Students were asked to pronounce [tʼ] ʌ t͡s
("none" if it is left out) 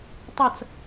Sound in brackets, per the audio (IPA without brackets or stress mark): tˤ